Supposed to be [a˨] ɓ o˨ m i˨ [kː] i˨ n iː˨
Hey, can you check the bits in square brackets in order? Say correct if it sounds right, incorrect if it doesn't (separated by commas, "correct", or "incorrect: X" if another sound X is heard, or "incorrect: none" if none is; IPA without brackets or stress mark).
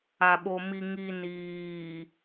correct, incorrect: ŋ